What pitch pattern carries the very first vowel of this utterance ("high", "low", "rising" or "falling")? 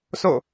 falling